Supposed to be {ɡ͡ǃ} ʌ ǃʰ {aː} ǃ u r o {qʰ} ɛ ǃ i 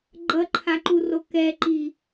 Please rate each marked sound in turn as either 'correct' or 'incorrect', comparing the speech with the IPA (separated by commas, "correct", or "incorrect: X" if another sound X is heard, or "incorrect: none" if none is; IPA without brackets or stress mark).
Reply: correct, incorrect: a, incorrect: k